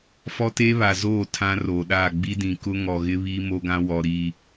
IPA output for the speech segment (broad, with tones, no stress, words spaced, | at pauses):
fɔ˦teː˦βa˨zoː˦˨ tʰã˦roː˨ɗaː˦˨ ɡ͡bi˦dĩ˨ kʊ˦ŋɔ˨ ɣɪ˦βiː˦ mo˦ɡã˦ wɔ˨ ɾi˨